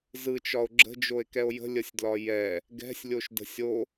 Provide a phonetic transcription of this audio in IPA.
zɯt͡ʃɒo̯ ɡ͡ǁə̤d͡ʒoe̯kɛo̯ jə̤lʲəsʲdlɒ jɛ | ɡɛ̤sʲlʲoʃdə̤ sʲo

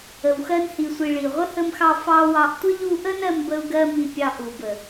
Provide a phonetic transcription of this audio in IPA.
ə˨wxɜ˧nhi˨sʷi˨ ɭi˨ ʁʷə˦hə˧mxɑ˧ fɑ˦wɑ˧ʔ tʷə˦ʎu˧ʔə˦n ɜ˦mbə˦u̯ɡɜ˦mi˧ pʲɑ˧ʔu˨bə˨

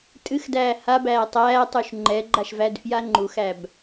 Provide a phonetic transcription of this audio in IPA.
tʼɨxdæː habæː tˤæːtˤuʃ ŋ͡ǃɛɡ͡ǃaʃvædfja ŋ͡ǃuxæb

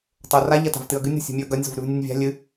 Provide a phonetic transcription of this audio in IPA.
tˤora ʎɐta̤vtɨɐ̯ɡɨnʲ ɾo̤sʲo̤mʲʉɐ̯ɡɐnʲ zo̤vɾʉvnʲɨnʲvʲa̤ lʲɨ

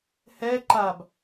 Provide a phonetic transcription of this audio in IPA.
hɛ ǃab

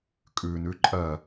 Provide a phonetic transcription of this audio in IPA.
kʼʉ nʉǃʼɜ

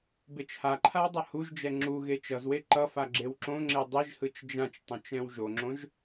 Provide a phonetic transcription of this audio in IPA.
bet͡ʃhaǃʰaw dˤʌhuʒd͡ʒɛ ŋ͡ǁuɣe t͡ʃʌzwe ǃʌfa ɡ͡ǁewǁõŋ͡ǁe dˤiʒhɯt͡ʃ d͡ʒãt͡ʃ tˤõt͡ʃɛ̃wʒoŋ͡ǁõʒ

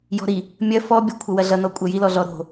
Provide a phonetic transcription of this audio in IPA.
jɔ̤ɾi | mʲɐ fɔbʲɔ kʷʰʌwɐɮʌ nɔkʷʼɐjilɔ ɮɔɾo̤

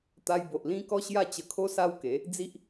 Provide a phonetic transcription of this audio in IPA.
t̪a˧jbo˨ʔlĩ˦ kɔ˦ɕja˦ t͡ɕə˧kʰo˦ sa˦wke˨˦ | d͡zi˦ʔ

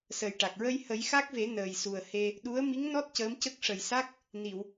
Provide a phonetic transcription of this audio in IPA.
sə˨˩jʈa˨˩k̚ ɹə˧jhə˨˩˦jxa˦˥k̚ve˨˩˦ nəː˨˩jsu˨˩ə̯ he˧ | ɗu˧˥ə̯ mi˧˥ŋnɔ˦˥t̚ cəː˧˥m cə˦˥k̚ʂə˨˩j sa˦˥k̚ | ni˨˩˨w

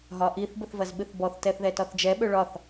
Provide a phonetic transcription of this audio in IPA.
ɦɒʔiθ bəθvɐzɓɨθbɔθ tɛθðɛtɒθd͡ʒɛ ɓøɭɒθ

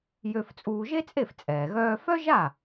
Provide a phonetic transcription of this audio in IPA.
jø˧ft͡sʼuː˧ ʒe˥t͡sʼe˥˩f t͡sʼɛː˩ɣœː˧fœ˥ʒa˥˩

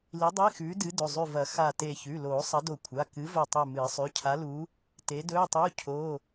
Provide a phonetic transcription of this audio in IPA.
li˨˥dˤe˧˥˧ xʉː˨˥dɨ˨˥dɵ˩˧˩ zˤʉ˧˩vɐ˨˩˦ xa˧˩te˧˩ çʉ˩˧˩loː˨˩˦ sˤɐ˨˥do˧˩kʷʰa˩˧˩ kɨ˨˥ vo˧˩tˤʉ˧˩ mɨː˨˩˦sˤʉ˩˧˩ cʰa˨˥lu˨˥ | te˨˥dɵː˧˥˧tˤu˧˥˧ cʰo˧˥˧

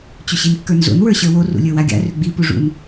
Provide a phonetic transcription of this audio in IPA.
t͡ɕʏɕinkːə˞nzo̰n wə˞ɕə˞wo rṵlʲə˞waɡʲa̰ rʏɡ͡bi puʐṵn

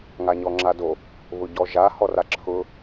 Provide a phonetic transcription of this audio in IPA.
ŋaɲɔŋ͡ǁado | βʊɟɔʒa hɔraǁʰʊ

